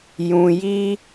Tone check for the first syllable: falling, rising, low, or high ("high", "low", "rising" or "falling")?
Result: low